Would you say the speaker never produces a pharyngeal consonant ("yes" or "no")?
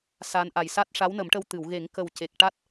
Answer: yes